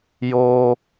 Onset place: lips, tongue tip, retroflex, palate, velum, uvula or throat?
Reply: palate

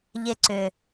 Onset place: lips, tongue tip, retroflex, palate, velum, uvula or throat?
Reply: palate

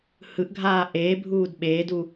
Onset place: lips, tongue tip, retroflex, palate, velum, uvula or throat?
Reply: throat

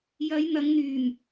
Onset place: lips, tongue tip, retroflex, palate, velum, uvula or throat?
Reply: palate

